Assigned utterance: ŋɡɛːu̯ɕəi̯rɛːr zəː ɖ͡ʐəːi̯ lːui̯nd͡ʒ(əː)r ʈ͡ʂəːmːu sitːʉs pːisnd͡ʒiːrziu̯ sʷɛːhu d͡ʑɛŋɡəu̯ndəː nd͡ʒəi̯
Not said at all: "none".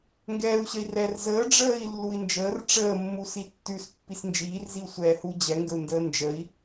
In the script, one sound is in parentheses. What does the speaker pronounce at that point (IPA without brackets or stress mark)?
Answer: əː